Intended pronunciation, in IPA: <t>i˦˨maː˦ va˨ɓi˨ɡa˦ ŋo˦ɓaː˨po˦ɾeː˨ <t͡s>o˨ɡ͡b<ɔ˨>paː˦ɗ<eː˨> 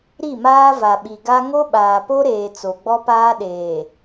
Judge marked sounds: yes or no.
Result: no, yes, no, yes

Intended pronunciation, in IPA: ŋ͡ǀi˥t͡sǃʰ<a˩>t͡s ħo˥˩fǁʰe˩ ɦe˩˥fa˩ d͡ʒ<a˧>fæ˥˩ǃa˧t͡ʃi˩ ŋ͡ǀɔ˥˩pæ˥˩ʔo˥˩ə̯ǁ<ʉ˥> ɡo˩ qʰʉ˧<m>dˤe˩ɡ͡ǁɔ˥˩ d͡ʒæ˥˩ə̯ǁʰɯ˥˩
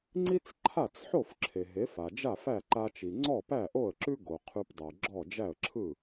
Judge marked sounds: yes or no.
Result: no, no, yes, no

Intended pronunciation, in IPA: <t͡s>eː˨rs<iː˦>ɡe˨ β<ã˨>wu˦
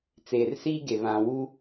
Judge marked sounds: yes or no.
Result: yes, yes, yes

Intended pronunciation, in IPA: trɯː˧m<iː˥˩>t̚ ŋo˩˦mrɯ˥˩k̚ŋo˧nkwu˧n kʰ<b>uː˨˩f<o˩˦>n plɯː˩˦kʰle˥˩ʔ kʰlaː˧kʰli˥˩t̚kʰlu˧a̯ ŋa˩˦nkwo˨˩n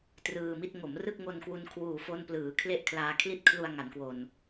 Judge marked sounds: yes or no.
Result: no, no, no

